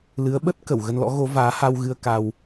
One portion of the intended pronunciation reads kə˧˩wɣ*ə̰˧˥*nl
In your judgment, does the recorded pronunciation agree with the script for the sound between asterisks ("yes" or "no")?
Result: no